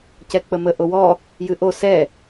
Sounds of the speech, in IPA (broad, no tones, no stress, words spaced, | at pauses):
cɛk͡pəmə ʔowɔ | jɨʔo sɛ